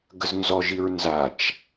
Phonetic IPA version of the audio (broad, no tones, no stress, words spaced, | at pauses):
ɡəznzɔʒiɹ nzat͡ʃ